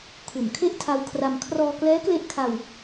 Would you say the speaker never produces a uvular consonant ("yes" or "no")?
yes